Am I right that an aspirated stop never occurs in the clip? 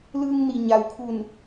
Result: no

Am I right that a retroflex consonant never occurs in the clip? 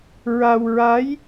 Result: yes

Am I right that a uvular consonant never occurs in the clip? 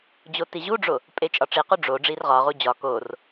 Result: no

